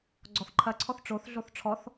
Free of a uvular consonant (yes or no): yes